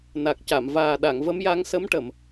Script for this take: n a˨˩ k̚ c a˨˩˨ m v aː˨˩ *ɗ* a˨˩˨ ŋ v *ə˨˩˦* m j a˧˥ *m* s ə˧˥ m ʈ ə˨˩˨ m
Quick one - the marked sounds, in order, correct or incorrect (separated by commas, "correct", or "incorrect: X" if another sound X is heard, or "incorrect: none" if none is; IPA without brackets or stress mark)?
correct, incorrect: ə˧˥, incorrect: ŋ